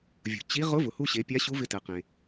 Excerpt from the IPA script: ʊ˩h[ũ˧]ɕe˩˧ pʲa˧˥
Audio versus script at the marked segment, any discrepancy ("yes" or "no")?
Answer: yes